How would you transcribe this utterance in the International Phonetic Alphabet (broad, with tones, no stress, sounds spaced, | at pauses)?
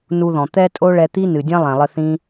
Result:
n u˧ ð ɔ̃˨ t̪ ɛ˧ tʼ o˦ ɭ ɛ˧ t̪ i˦ n ɨ˨ dʲ ɐ̃˦ lˠ ɛ̃˨ lˠ ɘ˧ θ ĩ˦